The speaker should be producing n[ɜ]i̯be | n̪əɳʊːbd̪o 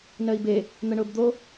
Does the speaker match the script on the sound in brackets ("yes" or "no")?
yes